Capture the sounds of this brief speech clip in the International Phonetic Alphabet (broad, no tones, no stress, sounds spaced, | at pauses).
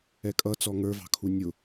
ɛ kʼ ʌ t͡s ɔ ŋ ə˞ v ɑ̤ kʰ u nʲ ʊ